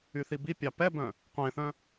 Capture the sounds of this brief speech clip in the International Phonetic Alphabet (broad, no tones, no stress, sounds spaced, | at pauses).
y θ i b i pʲ ɑ p ɛ b œ̃ | qʷ ẽ θ œ̃